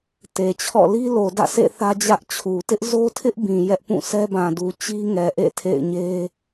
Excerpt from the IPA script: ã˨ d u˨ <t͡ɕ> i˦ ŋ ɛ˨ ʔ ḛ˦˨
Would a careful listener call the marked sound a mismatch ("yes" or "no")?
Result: no